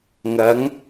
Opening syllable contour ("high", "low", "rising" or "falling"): rising